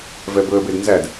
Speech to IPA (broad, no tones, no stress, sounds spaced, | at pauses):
v ɛ b ɵ ə̯ b e d n z æ d